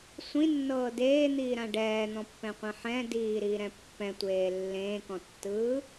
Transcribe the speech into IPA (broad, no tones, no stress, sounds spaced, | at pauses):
sʷ ĩ nː ɤː d eː n̪ iː ɾ ã ɖ ɛː n̪ ɔ̃ pː ɛ̃ qʷ ɛ̃ ħ ɛ̃ d iː ɾ iː ɾ ɛ̃ pː ɛ̃ tʷ eː lː ẽː k ɔ̃ tː ɯː